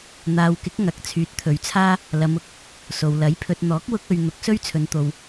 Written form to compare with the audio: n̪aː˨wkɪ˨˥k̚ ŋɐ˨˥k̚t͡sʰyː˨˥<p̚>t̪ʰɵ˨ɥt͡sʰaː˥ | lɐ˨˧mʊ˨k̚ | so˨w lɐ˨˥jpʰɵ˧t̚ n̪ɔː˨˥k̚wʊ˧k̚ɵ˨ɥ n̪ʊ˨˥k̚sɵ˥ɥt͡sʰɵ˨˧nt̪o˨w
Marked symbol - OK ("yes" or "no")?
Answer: no